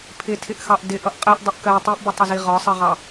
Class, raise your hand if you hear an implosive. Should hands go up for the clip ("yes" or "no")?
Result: no